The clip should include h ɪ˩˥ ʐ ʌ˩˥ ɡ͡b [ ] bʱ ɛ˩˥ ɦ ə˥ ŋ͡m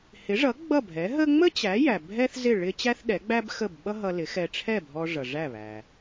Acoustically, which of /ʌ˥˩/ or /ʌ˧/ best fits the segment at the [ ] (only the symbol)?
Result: ʌ˥˩